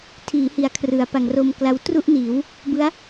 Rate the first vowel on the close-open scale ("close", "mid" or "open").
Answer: close